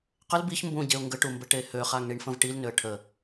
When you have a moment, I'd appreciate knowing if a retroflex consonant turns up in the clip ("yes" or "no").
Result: yes